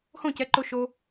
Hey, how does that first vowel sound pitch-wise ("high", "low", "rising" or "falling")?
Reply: falling